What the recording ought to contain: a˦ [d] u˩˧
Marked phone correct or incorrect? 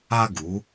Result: incorrect: ɡ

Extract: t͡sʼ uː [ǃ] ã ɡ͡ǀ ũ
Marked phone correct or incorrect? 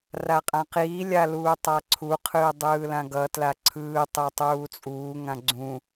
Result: incorrect: ŋ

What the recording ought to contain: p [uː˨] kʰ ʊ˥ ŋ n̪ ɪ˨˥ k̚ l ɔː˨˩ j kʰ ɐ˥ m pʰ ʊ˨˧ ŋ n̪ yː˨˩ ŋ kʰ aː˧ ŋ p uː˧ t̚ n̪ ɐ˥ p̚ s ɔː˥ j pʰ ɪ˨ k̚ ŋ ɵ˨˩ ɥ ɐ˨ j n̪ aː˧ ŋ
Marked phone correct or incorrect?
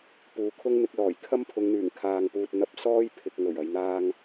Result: correct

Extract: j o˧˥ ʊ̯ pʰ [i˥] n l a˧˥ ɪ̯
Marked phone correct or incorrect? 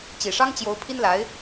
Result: correct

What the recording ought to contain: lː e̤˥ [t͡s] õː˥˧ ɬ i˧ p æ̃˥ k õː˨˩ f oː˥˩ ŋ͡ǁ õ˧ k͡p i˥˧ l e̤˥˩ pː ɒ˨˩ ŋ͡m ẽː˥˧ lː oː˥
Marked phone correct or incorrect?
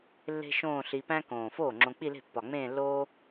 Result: incorrect: ʃ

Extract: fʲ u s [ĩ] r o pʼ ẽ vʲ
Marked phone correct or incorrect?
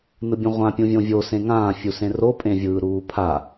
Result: incorrect: ẽ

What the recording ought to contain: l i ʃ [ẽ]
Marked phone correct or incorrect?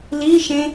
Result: correct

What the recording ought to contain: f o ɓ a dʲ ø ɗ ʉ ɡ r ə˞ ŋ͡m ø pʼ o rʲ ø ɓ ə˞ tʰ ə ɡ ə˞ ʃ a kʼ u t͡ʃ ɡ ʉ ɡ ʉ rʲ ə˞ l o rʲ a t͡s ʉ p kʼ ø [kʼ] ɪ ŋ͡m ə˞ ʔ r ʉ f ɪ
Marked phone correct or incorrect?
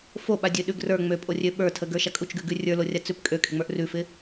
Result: correct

